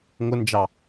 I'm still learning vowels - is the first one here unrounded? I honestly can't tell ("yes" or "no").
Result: no